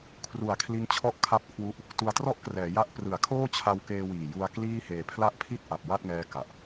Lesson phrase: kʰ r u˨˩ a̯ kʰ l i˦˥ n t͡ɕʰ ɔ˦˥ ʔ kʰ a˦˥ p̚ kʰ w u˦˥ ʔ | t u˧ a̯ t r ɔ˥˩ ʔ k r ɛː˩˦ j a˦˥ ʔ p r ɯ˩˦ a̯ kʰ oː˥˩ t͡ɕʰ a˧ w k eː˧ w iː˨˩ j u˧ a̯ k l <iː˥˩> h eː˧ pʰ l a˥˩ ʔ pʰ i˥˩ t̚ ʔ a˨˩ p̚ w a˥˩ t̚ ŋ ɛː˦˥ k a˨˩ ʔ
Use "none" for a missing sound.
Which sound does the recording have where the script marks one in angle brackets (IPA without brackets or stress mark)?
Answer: iː˥˩